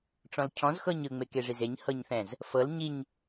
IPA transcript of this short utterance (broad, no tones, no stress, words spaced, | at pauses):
ʈ͡ʂɔ̃lcʰɔ̃z xɤɲɯ ŋ͡mekeʐizeɲ hɤɲθɛ̃z | fɤl ɲiɲ